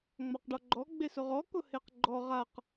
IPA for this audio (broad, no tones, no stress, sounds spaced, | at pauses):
ŋ͡m a q ɖ ɔ ɡ͡ǃ ɔ ɡ͡b e s ʊ ʁ ɔ k ʊ h e q ɡ͡ǃ ɔ ʁ a q